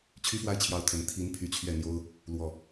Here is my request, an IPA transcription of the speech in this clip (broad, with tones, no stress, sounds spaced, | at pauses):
t͡ɕʰ y˥ f w a˥˩ ɪ̯ t͡ɕʰ j ɑ˧˥ ʊ̯ t̪ʰ ə˧˥ n t̪ʰ i˧˥ n pʰ y˧˥ t͡ɕʰ ɥ ɛ˥˩ n̪ j o˥ ʊ̯ | l w ɔ˥˩